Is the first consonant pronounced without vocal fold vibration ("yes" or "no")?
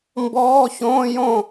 no